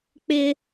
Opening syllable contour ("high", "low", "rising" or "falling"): high